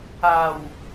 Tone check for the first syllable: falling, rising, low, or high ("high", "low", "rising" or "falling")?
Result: low